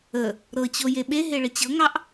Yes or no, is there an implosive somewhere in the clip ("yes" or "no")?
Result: yes